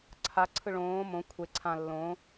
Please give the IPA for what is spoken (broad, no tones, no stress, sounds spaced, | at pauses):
ǀʰ a ǀʰ ɯ ɭ õː m õ kʷʰ e ǀʰ ã lː õː